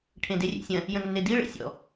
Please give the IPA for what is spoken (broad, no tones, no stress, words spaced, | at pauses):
ʈʰẽderʲḛsʲɐ̃ | jə̃nːedi ɭḛsʲɔ̰